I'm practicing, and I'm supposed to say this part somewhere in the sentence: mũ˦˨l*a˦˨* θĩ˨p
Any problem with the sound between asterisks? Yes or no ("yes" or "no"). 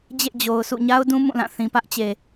yes